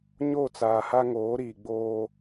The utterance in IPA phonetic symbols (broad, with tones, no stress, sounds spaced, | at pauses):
ɲ o˦˨ t͡s aː˨ h a˦ ŋ oː˨˦ ɾ iː˨ ɡ͡b oː˦